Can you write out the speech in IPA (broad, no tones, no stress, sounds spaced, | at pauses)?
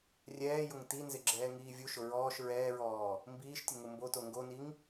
rʲ ɛː j ʊ ŋ t i n z ɪ ɡ͡ǁ ɛː ŋ iː vʲ u ʃ ʊ ɹ ɔː ʃ ɹ ɛː ɹ ɔː | m b iː ʃ tʲ ʊ ŋ ʊ m b o t o ŋ ɡ o n i ŋ